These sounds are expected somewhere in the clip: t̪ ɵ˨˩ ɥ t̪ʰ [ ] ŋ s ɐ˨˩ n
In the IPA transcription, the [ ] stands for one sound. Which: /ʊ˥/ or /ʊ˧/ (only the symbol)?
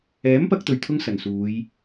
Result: ʊ˧